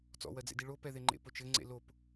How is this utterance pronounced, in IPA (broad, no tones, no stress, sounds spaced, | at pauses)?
t͡s ɔ̰ w ɜ d͡z ḛ d i ɭ o p ɛ ð e ŋ͡ǃ ḛ p o t͡ʃ ɘ ŋ͡ǀ ḛ l o p